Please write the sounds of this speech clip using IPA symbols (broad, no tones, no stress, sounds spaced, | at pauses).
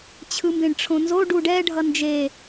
t͡ɕʰ ɯ m b ẽ ɖ ʈ͡ʂʰ õ n z o ɖ u ɖ ɛ ɖʱ ʌ n d͡ʒ e